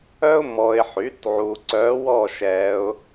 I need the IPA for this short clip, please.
œ˥ ʊ̯ m ɔ˨ ɪ̯ ħ y˩˥ t ʕ u˨ ǀ œ˧˥ w ɔ˥˧ ʃ ɛ˧˥ ʊ̯

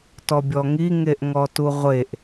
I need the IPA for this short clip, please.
t ɔ bʲ ɔ ŋ i ŋ e ʔ ŋ ɔ t u ʁʷ e ʔ

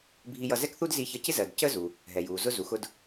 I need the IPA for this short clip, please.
bʱ i˧ j ʌ˧ z ɛ˥ k θ u˥ d z i˧˥ ç ʌ˧ c ɪ˥ z ɜ˩ d c əː˥ z u˩ | ɦ ɛ˩ j uː˩ z ʊ˧ z u˩ x ʊ˧ d

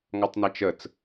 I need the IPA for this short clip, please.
ŋ ɔ tˤ n æ t͡ʃ ə t͡s

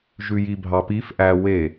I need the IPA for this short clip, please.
ʒ ʉ j i bʱ ɑ p i f ʔ æ w e

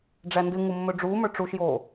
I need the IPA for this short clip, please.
ɖ͡ʐ æ n d ɨ ŋ u mː ɵ ɖ͡ʐ uː m ə˞ ʈ͡ʂ u ʃ j oː

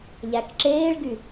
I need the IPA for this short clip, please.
ʎ æ k ǁ eː ɭ ɡ y

